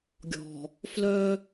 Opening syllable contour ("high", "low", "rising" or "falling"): low